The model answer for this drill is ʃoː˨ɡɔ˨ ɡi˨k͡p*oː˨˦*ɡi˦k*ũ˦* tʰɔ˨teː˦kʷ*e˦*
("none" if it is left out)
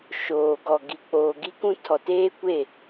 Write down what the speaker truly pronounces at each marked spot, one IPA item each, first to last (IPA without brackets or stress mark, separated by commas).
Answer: oː˨, ũ˦, e˦˨